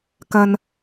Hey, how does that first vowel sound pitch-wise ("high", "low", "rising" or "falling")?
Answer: low